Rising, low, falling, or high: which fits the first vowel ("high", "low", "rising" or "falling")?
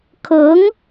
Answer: rising